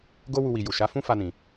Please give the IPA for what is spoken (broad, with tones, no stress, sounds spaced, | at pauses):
ɡ o˦ w u˧ w i˨ j u˨ ʃ a˨˦ f ũ˦ f a˧ n ĩ˨